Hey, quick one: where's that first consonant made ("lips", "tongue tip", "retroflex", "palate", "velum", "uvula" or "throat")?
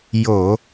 palate